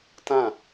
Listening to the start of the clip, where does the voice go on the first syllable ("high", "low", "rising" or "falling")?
falling